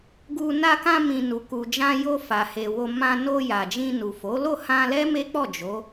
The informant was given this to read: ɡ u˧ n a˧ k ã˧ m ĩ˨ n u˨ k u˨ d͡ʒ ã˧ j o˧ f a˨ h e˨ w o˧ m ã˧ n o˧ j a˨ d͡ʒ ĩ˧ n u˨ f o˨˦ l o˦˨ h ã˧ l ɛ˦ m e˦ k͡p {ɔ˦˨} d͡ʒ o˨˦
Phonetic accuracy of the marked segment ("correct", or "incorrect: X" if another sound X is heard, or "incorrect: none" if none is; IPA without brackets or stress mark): correct